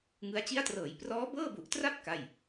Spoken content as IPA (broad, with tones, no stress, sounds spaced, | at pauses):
ŋ ɯ˦˥ a̯ t͡ɕ i˦˥ a̯ t r ɤː˩˦ j p r ɔː˦˥ b ɤː˥˩ b u˨˩ ʔ t r a˥˩ p̚ k a˥˩ j